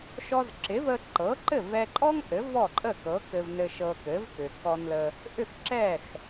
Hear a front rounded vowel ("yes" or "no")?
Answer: yes